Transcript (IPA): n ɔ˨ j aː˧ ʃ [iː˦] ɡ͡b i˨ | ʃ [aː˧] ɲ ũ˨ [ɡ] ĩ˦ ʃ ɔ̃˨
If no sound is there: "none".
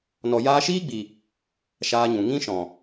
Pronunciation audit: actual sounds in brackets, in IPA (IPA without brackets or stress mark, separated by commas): iː˦, aː˧, ŋ